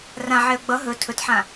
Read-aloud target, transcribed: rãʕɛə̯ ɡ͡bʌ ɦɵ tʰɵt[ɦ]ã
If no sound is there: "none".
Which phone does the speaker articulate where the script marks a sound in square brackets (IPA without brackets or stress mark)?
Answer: ħ